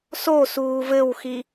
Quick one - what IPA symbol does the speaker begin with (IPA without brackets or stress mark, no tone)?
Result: s